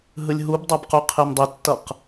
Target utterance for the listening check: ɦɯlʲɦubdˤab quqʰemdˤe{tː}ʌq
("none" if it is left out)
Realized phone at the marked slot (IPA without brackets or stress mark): tː